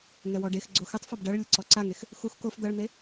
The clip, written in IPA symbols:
ŋɛwɔɖexɡ͡ǀo xɨtˤfɔb ɖɐɭ lʲɘǀɔǀaŋex | xux kof d̪ɐɭn̪e

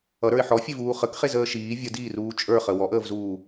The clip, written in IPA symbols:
ʌɾə˞ɪ̯ ħɔfʲevuː χəkχezəː ʃiː vʲədiːruː t͡ʃʼə˞χə wɔʔəːvzuː

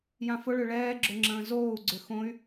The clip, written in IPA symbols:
jãfʊɭø ɭɛːɡ͡ǁʊ ŋ͡ǁə̃ːzoːu̯ɡ͡ǀʏ xõy̯

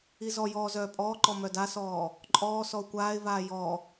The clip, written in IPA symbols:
izɔjɔː zœːpʼɔːǃɔ mœdasɔː | ǃʼɔː sɔʊ̯kʷaːɪ̯vaː jɔ

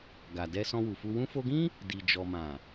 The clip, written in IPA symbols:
ɡa˨dɛ˧sɔ̃˧ wu˨fu˧ wũ˧fo˧ɡĩ˦ | di˨d͡ʒɔ˨mã˨

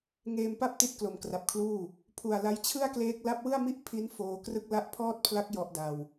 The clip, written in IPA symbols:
ŋeː˧mpa˥˩p̚ ti˦˥t̚klo˨˩mkra˨˩p̚kʰluː˥˩ | pʰu˨˩a̯ la˦˥jt͡ɕʰɯ˥˩a̯kleː˦˥k̚ la˦˥p̚wɯ˥˩a̯mi˥˩ʔ pʰi˦˥n foː˧krɯ˥˩k̚ la˦˥ʔpʰɔː˥˩t̚pʰla˦˥k̚ jɔ˦˥ʔda˧w

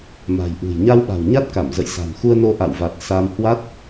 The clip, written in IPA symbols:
ma̤˨˩jʔṳ˨˩j ɲa˧wɓa̤˨˩w ɲa˦˥t̚ka˧˩mzə̰˧˨j sa̤˨˩mxu˧ə̯no˧ ʔa̰˧˨wva˨˩t̚ sa˧m hwa˦˥t̚

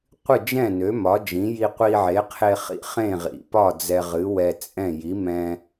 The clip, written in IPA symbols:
qʷɨ˥˩d͡ʒɛ̃˥˩nø˩˥ mɒ˩˥d͡ʒĩ˩˥ ji˧qʷi˧ʕe˩˥qʰe˧ χḭ˥˩χẽ˥˩ʁḭ˩˥pɒ˥˩ d͡zɛ˧ʁɨ˩˥ wɛ˧t͡sʼɛ̃˥˩ ji˩˥mɛ̃˧

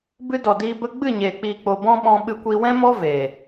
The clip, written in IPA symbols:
bɨ˧dɔ˨ diː˧bə˦ ɡ͡bɨ˦˨ɲeː˨ k͡piː˨k͡po˨ bɔ̃˦ɓɔ̃˧ ɓɨ˧kʷi˧ wɛ̃˦mɔ˦ veː˨

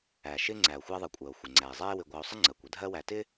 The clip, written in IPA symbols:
æ˩ʃɪ˦ ŋ͡ǀæ˩o̯ xʷæ˦ðˤɜ˨kʷʼɜ˩o̯xʷɪ˩ ŋ͡ǀæ˩e̯zˤɛ˦e̯ wɪ˨ɡʷæ˨o̯sˤə˥ ŋ͡ǀɜ˩kʷ ə˦ dʱɜ˦wæ˨tɪ˥

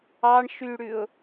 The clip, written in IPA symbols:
ɑɳʃyɽʉʊ̯

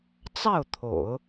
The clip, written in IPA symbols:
t͡sɑ˥˩ʊ̯t̪ʰo̰˨˩˦ʊ̯

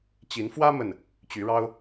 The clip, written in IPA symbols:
t͡ɕi˨˦nfwä˦mə˨˩n | t͡ɕy˨˦ɻɑ˦ʊ̯

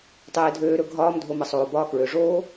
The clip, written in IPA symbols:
tˤeː˧dʱøː˧ɾɵ˧ ɡʱɒː˧mdʱo˨mə˨ sˤoː˨bɒː˧kɹø˨ʐoː˦

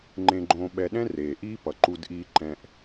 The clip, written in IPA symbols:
ŋ͡ǃẽ˨ɡ͡ǃõː˨ɓɛ˨ɗɛ̃˦ reː˩ ʔiː˦pʌ˩ ǃu˨dʔiː˨ǃɛ̃˨ʔ

